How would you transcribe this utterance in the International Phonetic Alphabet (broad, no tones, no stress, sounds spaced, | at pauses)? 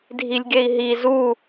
dʱ i lʲ ɡ e i̯ ɦ i z u